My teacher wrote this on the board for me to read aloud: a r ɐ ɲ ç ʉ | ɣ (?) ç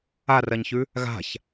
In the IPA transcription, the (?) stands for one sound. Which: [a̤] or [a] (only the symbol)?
a̤